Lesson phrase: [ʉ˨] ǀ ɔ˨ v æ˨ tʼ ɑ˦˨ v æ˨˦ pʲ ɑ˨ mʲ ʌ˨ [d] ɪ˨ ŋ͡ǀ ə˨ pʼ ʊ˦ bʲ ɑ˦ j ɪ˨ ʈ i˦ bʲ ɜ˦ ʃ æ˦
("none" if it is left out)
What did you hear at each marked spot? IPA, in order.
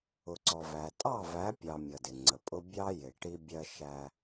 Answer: ʊ˨, d

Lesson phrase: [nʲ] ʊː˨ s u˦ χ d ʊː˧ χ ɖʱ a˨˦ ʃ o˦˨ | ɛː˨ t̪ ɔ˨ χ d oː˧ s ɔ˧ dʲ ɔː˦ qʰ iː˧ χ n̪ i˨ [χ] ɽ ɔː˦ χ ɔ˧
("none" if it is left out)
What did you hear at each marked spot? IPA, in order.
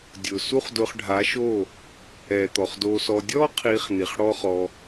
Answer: dʲ, χ

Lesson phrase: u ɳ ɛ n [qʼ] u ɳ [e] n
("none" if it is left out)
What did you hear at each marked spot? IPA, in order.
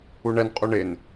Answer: qʼ, e

